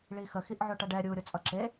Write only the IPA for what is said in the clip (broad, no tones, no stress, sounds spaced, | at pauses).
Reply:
ɭ i x ə x i ʔ ʕ o ʈ ʌ ɖ ɛ ɾʲ u ɾʲ o t͡sʼ ʌ ǁ e